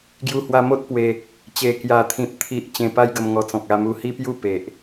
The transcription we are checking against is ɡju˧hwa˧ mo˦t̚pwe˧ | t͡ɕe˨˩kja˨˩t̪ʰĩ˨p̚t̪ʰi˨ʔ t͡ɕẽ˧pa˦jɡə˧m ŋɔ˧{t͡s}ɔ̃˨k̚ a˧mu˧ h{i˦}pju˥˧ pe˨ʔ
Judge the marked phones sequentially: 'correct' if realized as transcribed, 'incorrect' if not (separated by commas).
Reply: correct, correct